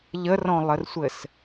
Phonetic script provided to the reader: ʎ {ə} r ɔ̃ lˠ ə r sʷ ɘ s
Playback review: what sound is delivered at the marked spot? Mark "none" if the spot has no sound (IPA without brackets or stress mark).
ə